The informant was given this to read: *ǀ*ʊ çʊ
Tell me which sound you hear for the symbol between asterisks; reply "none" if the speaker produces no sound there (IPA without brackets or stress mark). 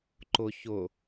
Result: ǃ